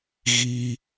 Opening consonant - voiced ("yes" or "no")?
yes